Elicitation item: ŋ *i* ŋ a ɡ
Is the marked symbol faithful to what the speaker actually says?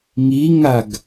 yes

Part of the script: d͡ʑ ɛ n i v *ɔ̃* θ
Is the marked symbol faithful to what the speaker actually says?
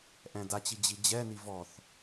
no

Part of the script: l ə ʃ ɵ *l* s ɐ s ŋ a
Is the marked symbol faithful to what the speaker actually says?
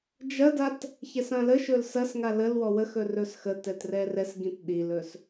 yes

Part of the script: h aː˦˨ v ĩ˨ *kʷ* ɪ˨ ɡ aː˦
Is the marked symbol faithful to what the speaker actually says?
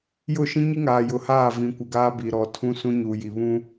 yes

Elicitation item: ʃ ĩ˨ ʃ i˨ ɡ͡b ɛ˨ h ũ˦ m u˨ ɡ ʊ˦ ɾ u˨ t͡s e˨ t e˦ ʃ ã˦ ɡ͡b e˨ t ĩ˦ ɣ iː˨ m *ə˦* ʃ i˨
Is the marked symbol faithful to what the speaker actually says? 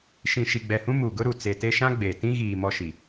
no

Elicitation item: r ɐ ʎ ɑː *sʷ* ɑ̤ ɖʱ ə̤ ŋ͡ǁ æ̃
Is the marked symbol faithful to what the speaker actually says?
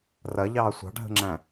yes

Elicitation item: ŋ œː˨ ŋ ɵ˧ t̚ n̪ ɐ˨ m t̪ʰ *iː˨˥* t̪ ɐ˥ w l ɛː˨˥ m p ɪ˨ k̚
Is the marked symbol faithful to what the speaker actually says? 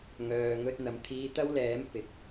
no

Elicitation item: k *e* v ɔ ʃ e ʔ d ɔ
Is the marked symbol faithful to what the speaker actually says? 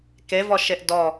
yes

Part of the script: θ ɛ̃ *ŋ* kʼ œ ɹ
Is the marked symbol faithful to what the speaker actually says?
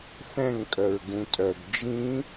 yes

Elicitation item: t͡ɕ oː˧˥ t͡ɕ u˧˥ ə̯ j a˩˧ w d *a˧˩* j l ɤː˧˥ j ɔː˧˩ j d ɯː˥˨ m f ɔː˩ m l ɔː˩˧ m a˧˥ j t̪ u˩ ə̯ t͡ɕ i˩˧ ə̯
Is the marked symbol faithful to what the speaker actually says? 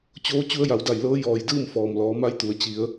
yes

